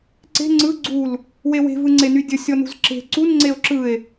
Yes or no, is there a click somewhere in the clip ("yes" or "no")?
yes